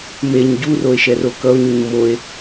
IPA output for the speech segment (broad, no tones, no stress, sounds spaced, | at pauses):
m e ɲ ɟ u r o e̯ ʃ ɛ r o k ʌ o̯ ɲ u ɲ m o e̯